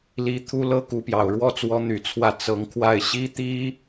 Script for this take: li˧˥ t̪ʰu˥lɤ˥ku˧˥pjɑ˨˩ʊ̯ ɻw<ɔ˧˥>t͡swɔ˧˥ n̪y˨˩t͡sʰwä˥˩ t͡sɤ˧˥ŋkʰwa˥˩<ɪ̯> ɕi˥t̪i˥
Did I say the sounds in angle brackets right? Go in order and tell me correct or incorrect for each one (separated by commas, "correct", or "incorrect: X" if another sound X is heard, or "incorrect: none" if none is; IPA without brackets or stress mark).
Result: incorrect: ɔ˥˩, correct